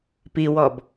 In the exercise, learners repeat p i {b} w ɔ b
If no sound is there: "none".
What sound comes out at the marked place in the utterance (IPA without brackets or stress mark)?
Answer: none